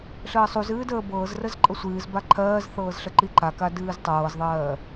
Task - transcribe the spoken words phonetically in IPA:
ɬ əː sˤ u z ɨː d əː b ɤː z r ə z ǃʼ ə sʷ ɨː z b a ǃʰ ɜː z θ ɤː z ɬ ə ǃ i ǃ a k a d ɨː z tˤ ɤː z ðˤ ɜː

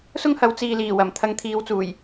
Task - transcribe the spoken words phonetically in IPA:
s ʊ˥ ŋ h ɐ˨˥ w t͡s iː˨ l iː˨˩ w ɐ˨˩ m t̪ʰ ɐ˧ ŋ t̪ʰ iː˨˧ w t͡s uː˨˩ j

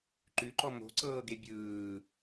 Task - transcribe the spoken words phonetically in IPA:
ǃ ʉ ǃ ɔ m o̤ ǀ ɤː ɡ e bʲ ɯː

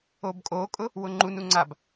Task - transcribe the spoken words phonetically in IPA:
o b kʼ o kʼ ʊ | w ʊ ŋ͡ǃ u n u ŋ͡ǀ a b

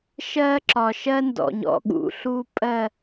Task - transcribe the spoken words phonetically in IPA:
ʃ ɜ˦ ǁ ɒ˨ ʃ ɜ˦ n d ɔ̰˨ ɲ ɔ̰˦˨ ɠ ṵ˨˦ ɬ u˦ pʼ ɜ˦˨

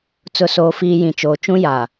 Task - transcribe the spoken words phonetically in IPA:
t͡s ʊ˨ s oː˨ f iː˨ j ĩ˨ t͡ʃ oː˨ t͡ʃ ũ˦ j aː˨

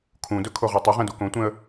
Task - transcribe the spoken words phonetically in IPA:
kʰ ũ d ɵ kʰ o ʁ ɔ tˤ ɵ ʁ ɛ̃ d u k õ tʷ ɛ̃ ə̯

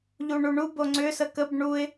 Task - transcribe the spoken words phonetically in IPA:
ʎ u ɳ u ɳ u b o ŋ͡ǀ ʏ s ə k ə b ɳ u ɪ̯

